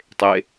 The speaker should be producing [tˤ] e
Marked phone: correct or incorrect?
correct